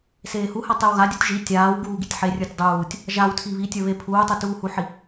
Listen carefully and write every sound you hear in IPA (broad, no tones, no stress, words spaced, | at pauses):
seːhuha tˤewɣadʲutʲ ʒi tʲaːw ɡuːɡitʲħerʲə˞tʲ dˤuːtʲ | ʒawtʰi βitʲə˞ βepʰuːtˤə˞ tuːhuħi